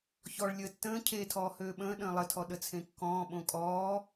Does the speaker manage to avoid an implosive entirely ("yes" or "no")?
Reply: no